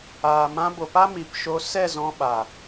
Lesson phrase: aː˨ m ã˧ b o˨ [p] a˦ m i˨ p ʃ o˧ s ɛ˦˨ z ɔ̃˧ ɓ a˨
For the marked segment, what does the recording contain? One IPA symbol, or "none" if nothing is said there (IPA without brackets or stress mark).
p